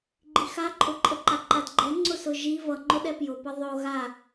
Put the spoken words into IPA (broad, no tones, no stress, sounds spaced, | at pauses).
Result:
ɡ͡ǃ i x a ǃʼ ʊ ǃʼ ə ǃ a ǃ a d ɡ͡ǃ ɛ ŋ͡ǀ ʊ s ʊ ʒ i v ʌ ŋ͡ǃ ʊ ɗ ɛ p j ʊ p ʌ ðˤ o ɣ a